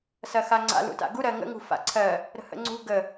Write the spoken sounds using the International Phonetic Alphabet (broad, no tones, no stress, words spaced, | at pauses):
sɐxaŋ͡ǀa̰ lṵta̰ɡu ɾɜŋə̰ ŋṳfa̰ǀʰɜ | ɾə̤hə̰ŋ͡ǀṳ ɡə